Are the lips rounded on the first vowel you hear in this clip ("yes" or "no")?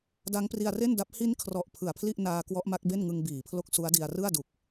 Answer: no